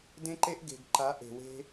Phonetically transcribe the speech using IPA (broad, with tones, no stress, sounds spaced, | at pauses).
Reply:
d ẽ˦ ǃ e˦ ʔ ɡ e̤˨ ɡ ǃ a˨˦ ʔ e̤˨ w e̤˦